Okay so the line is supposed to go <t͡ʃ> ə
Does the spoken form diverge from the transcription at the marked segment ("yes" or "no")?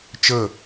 no